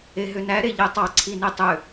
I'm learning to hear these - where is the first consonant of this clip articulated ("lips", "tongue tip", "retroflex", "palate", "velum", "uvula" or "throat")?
throat